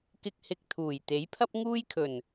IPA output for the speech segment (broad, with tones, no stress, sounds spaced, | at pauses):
k ɪ˧ k̚ h ɪ˧ k̚ t̪ʰ uː˨˩ j t̪ e˨˥ j pʰ ɐ˥ p̚ ŋ uː˥ j kʰ ɵ˨˩ n